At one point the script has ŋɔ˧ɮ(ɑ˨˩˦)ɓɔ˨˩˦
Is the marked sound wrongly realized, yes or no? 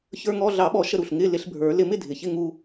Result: no